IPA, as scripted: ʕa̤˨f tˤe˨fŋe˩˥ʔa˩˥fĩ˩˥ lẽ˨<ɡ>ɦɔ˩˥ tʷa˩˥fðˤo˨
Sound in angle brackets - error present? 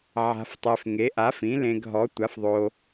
no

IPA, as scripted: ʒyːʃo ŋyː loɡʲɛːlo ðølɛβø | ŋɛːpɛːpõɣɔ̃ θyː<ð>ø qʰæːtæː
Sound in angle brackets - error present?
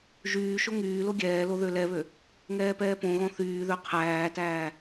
no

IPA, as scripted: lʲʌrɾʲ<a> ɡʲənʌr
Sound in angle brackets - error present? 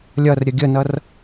yes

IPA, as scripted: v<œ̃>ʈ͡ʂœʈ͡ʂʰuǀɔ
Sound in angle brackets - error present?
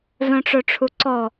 no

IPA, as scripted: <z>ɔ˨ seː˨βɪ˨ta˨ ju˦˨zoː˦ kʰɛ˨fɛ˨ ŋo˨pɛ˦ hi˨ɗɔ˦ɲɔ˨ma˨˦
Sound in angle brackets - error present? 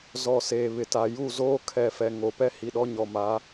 no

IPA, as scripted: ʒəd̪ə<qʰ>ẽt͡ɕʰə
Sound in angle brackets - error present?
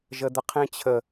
no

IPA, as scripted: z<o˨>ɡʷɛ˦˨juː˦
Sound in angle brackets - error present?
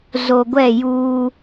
no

